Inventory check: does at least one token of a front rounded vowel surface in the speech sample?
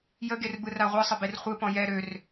yes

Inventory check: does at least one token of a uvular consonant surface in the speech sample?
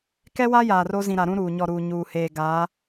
no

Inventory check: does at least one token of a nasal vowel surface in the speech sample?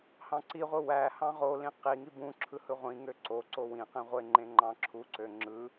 yes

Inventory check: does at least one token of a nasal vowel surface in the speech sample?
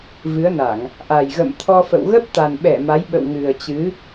no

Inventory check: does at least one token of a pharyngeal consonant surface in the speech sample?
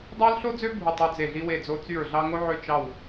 yes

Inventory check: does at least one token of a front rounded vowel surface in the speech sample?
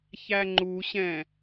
no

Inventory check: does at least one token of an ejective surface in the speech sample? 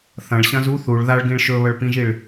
no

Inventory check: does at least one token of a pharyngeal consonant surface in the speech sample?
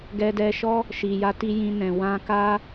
no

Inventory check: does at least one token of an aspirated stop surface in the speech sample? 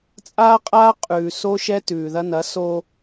no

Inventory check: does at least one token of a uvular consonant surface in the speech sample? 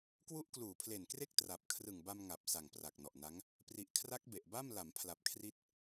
no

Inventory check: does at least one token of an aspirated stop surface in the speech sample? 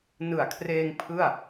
yes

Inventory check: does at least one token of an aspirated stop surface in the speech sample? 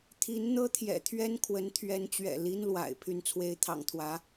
yes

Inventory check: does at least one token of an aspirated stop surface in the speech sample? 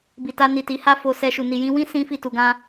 no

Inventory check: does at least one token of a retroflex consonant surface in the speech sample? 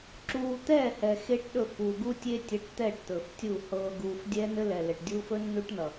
yes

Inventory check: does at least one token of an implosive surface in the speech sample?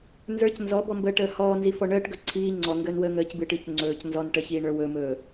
no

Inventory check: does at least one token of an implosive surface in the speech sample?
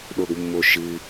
yes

